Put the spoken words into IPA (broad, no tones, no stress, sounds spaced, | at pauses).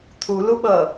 t̪ʰ u l u ɓ ʌ